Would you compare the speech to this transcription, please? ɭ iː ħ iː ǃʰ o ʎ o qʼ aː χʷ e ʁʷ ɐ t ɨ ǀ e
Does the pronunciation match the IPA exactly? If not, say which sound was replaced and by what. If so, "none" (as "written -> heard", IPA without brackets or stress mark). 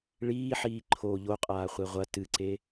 none